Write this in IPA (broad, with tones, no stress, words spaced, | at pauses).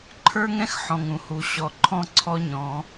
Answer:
ǃʰə˞˦ŋɛ̃˦x ħɔ̃˨ŋũ˨hu˨ ɕɔ˨ǃʰɔ̃˦ ǀʰɔ˦ɲɔ̃˨˦